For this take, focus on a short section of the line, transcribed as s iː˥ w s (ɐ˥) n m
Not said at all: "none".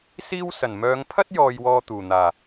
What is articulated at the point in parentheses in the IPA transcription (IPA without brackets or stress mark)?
ɐ˨˩